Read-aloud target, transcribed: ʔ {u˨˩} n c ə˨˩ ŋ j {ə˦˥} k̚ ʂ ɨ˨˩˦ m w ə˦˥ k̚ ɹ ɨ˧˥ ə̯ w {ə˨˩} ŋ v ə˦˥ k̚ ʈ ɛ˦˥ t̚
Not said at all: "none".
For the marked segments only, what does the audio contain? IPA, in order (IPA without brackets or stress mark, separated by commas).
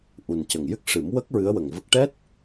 u˨˩, ɨ˦˥, ə˨˩